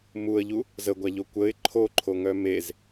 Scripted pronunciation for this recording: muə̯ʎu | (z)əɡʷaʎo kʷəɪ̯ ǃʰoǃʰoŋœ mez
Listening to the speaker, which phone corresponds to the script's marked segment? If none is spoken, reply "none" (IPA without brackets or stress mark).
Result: z